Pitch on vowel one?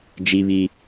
high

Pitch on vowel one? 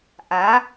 rising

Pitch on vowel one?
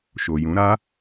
low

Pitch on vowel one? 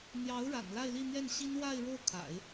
rising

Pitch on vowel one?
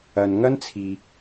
low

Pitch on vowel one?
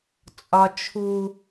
high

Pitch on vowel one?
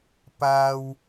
high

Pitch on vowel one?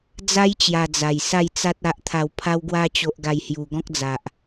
high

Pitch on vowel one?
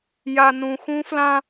low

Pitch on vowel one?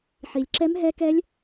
low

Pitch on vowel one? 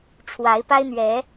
rising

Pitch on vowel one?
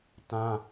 high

